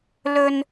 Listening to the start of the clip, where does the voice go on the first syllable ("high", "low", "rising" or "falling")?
high